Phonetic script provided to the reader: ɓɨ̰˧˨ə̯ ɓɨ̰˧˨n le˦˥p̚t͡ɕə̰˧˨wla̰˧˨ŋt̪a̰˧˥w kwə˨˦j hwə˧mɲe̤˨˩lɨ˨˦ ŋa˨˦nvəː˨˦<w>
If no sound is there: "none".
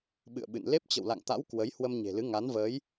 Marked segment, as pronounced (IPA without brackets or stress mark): j